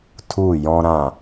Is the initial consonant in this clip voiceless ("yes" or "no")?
yes